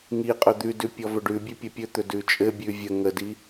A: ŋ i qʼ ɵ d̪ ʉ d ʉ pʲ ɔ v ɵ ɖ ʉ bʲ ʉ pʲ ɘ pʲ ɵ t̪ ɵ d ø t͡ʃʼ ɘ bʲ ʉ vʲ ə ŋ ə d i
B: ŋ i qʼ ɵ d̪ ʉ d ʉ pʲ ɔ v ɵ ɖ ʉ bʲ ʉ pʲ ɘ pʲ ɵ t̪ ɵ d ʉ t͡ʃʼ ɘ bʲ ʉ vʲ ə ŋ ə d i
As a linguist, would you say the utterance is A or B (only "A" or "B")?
B